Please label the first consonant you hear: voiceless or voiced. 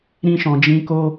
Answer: voiced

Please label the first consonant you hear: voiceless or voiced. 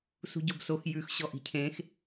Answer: voiceless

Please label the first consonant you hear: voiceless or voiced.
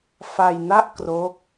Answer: voiceless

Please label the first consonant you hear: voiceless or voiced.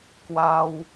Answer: voiceless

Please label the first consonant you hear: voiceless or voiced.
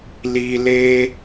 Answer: voiced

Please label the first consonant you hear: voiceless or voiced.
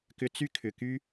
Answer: voiceless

